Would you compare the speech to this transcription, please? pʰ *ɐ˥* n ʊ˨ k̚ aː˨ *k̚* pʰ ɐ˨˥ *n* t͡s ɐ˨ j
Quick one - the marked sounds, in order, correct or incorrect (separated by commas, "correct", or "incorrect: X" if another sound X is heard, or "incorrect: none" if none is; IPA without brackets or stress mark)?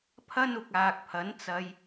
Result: correct, correct, correct